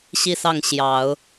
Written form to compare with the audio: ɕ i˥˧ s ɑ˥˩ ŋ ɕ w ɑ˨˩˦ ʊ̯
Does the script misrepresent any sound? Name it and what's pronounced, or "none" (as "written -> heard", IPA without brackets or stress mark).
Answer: w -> j